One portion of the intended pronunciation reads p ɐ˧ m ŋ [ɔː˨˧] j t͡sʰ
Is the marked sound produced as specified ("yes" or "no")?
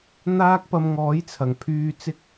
no